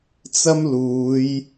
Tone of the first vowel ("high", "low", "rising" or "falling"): high